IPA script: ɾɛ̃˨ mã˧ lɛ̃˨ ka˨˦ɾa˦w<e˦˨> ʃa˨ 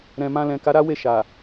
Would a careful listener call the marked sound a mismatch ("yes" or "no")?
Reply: no